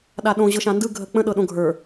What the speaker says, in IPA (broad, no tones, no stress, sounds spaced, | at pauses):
ɗ a ɗ õ ʑ ɤ ʃ ã n d ɯ ɡʱ ə k͡p ə̃ ɗ ɤ ɗ õ ɡʱ ə˞